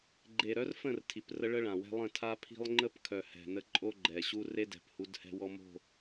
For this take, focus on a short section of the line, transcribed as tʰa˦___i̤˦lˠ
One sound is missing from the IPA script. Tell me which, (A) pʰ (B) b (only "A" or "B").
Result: A